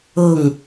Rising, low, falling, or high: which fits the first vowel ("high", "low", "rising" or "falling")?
falling